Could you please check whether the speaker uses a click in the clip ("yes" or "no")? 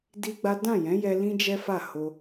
no